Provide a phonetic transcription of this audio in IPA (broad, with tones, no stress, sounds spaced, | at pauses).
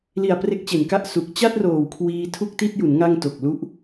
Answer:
l i˨˩ a̯ p r e˦˥ k̚ t͡ɕ e˨˩ n k a˥˩ ʔ s u˨˩ k̚ t͡ɕ a˥˩ t̚ r oː˨˩ w kʰ w iː˧ tʰ u˥˩ k̚ t i˥˩ t̚ j u˩˦ n ŋ a˧ ŋ t o˨˩ k̚ l u˦˥ ʔ